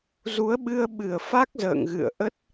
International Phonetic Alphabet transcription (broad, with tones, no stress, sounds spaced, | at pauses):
z u˨˦ ə̯ ɓ ɨ˧ ə̯ ɓ ɨ˧˩ ə̯ f a˦˥ k̚ z ə̰ː˧˨ ŋ ɣ ɨ̰˧˨ ə̯ ʔ ə˦˥ t̚